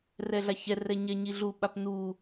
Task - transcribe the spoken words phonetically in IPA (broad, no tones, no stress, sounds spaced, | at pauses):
r ɛ ɮ a ç ɛ r ɛ ɲ ɛ ɲ i ɮ u ɓ a p n u